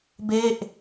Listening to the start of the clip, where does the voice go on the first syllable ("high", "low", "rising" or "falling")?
falling